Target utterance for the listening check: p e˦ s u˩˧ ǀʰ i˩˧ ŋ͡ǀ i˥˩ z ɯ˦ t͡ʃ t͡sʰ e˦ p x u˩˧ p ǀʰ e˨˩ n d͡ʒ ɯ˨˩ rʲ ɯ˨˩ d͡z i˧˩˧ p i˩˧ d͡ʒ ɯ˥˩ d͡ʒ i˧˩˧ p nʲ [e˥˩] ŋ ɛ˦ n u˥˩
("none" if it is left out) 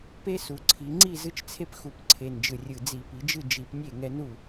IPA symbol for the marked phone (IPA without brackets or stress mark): e˥˩